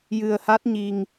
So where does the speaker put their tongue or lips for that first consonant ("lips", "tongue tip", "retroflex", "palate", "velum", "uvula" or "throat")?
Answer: palate